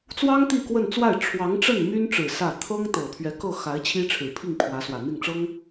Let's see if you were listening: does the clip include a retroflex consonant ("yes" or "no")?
yes